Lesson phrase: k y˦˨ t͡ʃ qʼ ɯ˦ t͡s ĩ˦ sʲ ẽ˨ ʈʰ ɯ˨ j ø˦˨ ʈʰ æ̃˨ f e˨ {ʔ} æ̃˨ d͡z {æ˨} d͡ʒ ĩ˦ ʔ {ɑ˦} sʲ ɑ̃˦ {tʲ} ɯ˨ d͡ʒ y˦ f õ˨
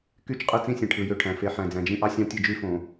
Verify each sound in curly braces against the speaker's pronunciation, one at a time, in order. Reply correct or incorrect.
incorrect: ħ, incorrect: æ̃˨, correct, correct

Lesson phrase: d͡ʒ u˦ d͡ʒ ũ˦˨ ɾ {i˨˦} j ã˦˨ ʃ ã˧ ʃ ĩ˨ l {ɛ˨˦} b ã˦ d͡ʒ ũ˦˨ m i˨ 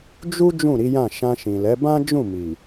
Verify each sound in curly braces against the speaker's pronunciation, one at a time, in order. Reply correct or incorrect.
correct, correct

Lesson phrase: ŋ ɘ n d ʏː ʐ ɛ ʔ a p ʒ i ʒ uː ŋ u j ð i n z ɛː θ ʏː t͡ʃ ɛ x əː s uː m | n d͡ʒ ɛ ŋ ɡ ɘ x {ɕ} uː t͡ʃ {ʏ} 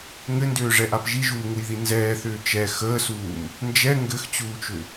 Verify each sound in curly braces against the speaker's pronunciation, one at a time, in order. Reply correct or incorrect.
incorrect: t͡ɕ, correct

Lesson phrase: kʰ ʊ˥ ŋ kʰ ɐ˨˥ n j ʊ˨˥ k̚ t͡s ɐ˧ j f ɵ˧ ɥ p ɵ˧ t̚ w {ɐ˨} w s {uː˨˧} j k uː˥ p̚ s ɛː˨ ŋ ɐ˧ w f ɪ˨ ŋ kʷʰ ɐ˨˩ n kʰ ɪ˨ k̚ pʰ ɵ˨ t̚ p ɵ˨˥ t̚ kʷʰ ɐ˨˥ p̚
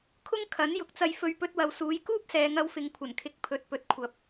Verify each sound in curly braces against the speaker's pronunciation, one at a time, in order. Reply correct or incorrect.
correct, correct

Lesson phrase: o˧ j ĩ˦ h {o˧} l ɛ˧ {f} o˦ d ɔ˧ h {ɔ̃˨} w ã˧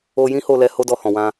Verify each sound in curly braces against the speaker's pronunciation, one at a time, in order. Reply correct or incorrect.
correct, incorrect: h, correct

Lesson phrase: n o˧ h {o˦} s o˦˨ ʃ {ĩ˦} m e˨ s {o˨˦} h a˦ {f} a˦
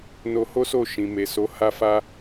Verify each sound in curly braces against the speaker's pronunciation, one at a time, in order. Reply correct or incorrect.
correct, incorrect: ĩ˨, correct, correct

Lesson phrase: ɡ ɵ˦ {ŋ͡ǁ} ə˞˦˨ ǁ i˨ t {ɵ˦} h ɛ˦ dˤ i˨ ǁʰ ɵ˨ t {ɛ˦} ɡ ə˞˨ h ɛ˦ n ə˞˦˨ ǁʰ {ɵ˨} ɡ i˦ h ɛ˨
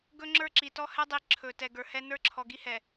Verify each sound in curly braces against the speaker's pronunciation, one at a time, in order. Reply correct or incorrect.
correct, incorrect: ɔ˦, incorrect: ɛ˨, incorrect: ɔ˨

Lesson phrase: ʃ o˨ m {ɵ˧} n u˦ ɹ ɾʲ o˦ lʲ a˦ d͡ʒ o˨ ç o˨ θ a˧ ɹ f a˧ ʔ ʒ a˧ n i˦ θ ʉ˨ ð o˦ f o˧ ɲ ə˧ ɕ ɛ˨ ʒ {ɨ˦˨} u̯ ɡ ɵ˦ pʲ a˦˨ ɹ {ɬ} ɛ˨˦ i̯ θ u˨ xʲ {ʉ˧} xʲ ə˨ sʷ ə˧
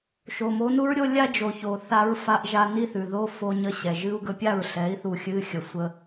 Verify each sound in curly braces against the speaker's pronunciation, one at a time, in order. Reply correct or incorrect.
incorrect: o˧, incorrect: ɨ˦, correct, incorrect: ɨ˧

